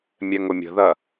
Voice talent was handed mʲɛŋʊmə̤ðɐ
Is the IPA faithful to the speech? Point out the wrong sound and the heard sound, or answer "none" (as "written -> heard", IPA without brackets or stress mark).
m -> mʲ